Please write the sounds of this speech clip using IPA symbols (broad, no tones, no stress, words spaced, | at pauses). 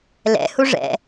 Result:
lɛ̰ huʐɛ̰